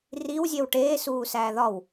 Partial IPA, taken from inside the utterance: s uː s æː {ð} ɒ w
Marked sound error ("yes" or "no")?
no